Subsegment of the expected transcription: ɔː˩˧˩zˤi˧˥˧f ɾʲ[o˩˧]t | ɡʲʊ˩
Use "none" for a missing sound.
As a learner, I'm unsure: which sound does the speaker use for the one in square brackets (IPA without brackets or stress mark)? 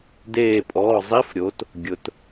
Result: o˩˥